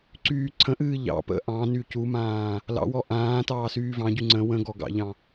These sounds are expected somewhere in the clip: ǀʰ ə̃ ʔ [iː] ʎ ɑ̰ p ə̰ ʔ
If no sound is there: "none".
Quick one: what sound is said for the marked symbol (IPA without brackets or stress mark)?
ɨː